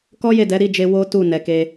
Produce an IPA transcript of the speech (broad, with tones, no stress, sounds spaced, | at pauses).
k ɔ˦ j e˦˨ d ɛ˨˦ ɾ i˦˨ d͡ʒ e˧ w o˦ t u˦˨ n ɛ˨ k e˧